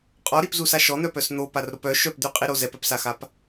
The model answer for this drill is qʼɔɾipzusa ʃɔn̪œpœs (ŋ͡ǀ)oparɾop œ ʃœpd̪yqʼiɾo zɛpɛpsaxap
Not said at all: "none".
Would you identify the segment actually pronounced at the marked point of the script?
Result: n̪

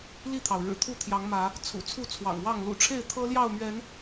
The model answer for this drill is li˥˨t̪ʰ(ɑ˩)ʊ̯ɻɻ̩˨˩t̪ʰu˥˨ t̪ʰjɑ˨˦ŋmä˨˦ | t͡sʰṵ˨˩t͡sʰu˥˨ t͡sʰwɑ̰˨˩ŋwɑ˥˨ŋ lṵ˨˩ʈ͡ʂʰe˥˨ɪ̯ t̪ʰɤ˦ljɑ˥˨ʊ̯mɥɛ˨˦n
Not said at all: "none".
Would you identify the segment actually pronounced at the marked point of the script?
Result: ɑ˩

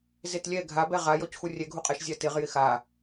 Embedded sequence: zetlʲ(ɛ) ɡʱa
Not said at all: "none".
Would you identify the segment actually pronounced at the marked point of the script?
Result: ɛ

